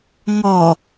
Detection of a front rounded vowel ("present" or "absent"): absent